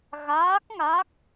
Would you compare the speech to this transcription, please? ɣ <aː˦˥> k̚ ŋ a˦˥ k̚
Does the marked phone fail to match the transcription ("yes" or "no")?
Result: no